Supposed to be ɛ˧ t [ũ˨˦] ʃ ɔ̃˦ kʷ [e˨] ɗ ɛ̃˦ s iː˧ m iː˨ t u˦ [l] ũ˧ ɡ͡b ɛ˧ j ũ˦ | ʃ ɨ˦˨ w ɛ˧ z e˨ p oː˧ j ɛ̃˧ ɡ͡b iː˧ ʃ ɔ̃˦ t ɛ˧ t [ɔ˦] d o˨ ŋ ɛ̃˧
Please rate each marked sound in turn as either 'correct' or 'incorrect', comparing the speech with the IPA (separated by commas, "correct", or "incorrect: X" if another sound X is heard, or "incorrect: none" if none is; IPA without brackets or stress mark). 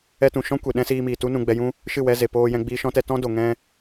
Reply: incorrect: ũ˨, correct, incorrect: n, incorrect: ɔ̃˦